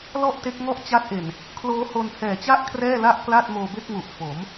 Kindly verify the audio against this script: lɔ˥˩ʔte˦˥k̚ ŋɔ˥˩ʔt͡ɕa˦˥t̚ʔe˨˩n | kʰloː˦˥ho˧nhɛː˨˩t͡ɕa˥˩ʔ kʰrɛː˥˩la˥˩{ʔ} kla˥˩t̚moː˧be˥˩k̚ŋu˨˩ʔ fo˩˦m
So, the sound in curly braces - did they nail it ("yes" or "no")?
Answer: yes